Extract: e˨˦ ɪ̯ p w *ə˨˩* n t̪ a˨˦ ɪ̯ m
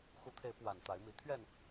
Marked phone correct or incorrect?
incorrect